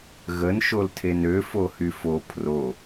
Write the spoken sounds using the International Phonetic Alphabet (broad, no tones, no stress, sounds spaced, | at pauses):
ɣ ə n ʃ o l tʰ e n ø f o h y f o pʰ r o